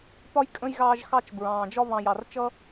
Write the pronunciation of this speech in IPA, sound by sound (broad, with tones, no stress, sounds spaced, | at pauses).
p ɒ˥ j kʼ ə̃˥ j ɣ ɑː˦ ʒ x ɑ˥ t͡ʃ b ɹ ɑ̃ː˩ d͡ʒ ɒ˦ β ɑ̃˨ j ɑ˩ r t͡ʃ ʌ˥